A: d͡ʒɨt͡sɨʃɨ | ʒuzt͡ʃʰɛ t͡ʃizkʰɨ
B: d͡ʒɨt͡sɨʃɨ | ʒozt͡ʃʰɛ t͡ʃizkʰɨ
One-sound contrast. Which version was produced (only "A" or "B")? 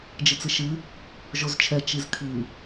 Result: B